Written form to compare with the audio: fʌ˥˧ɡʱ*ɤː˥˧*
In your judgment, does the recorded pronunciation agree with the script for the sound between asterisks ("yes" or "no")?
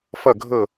no